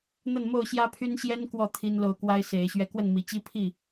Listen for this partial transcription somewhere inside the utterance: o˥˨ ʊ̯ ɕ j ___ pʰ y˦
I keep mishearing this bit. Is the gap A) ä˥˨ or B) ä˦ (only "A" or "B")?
B